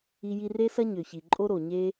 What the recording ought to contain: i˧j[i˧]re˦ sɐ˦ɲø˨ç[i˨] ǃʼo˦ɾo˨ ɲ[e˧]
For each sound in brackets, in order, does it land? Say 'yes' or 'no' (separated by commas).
yes, yes, no